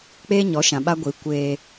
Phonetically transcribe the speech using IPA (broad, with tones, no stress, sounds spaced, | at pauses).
k͡p eː˦ ɲ ɔ˨˦ ʃ ã˨ ɓ a˦ ɡʷ i˨˦ kʷ eː˧